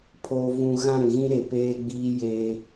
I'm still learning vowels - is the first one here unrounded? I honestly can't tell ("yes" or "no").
no